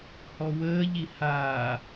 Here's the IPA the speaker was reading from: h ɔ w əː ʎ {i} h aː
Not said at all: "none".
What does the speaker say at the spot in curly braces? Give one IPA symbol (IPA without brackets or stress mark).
i